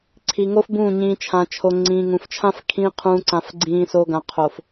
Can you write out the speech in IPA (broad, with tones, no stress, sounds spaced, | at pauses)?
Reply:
ǀʰ i˨ ŋ o˦ f b ũː˦˨ ɲ ĩː˨ t͡ʃʰ ã˨ t͡ʃʰ o˨ ŋ͡ǀ ĩ˨ ŋ ũ˨ f t͡ʃʰ ã˦ f kʰ ĩː˦ qʰ ũː˨ ǀ ã˨ f ɡ͡ǀ ĩː˨ s o˨ ɡ ã˨ qʰ o˨ f